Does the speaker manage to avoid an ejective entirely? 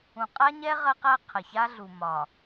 no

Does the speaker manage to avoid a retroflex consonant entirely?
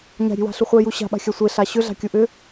yes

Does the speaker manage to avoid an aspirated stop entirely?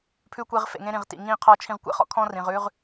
no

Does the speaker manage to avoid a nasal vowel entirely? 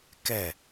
yes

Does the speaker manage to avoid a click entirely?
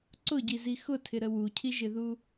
no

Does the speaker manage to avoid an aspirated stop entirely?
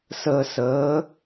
yes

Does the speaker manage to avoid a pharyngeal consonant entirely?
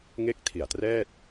yes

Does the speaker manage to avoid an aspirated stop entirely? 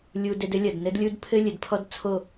no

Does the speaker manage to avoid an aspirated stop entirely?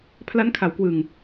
no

